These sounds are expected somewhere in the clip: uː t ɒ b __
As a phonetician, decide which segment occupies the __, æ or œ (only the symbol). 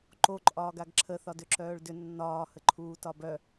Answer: œ